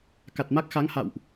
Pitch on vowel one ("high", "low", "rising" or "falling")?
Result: low